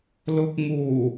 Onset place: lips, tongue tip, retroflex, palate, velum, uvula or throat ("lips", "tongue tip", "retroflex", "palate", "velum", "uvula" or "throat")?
tongue tip